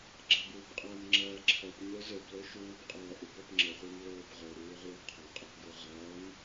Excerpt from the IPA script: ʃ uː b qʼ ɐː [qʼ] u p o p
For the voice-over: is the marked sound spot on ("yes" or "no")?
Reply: no